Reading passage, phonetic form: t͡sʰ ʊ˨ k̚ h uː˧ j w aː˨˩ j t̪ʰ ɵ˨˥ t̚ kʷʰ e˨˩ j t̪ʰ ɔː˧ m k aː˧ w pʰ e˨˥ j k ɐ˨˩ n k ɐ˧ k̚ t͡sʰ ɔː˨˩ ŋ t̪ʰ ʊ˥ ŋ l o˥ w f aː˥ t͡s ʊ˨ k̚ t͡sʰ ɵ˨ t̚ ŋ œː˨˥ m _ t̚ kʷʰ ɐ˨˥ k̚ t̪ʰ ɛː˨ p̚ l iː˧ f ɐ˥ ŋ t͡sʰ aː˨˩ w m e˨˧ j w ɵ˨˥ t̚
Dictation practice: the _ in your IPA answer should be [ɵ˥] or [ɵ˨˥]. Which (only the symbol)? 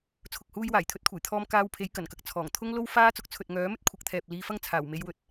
ɵ˥